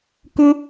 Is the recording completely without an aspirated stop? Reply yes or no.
yes